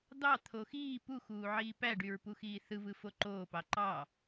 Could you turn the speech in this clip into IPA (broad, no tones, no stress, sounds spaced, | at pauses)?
d̪ ɑ t̪ʰ o x iː p u x uː ʕ iː p æ ɖ y ɹ p u x iː θ ɯ v ɯ f o ǃ oː p ɑ ǃ ɑ